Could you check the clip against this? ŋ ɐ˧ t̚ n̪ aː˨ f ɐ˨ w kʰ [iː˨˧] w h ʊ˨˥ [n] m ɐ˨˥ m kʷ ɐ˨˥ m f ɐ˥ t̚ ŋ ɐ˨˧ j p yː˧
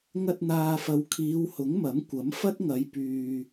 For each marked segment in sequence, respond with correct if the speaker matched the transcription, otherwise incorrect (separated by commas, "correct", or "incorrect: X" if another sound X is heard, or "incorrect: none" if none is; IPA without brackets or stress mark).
correct, incorrect: ŋ